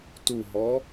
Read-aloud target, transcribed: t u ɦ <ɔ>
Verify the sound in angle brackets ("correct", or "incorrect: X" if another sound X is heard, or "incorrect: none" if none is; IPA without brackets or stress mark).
correct